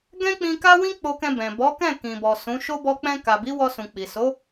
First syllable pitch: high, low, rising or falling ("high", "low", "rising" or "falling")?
high